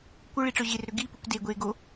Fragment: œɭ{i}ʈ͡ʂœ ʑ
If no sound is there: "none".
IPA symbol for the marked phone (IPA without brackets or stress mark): i